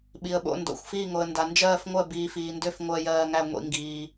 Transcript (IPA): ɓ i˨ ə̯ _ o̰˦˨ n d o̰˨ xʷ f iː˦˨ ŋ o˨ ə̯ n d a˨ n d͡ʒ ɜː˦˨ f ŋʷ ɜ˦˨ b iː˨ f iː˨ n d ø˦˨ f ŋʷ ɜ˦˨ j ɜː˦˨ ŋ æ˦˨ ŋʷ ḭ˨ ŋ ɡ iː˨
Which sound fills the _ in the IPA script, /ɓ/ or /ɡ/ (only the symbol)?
ɓ